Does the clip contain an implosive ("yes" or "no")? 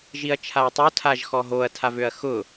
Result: no